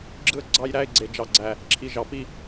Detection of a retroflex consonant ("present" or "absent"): absent